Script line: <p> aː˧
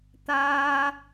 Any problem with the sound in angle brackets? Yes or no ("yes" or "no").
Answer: yes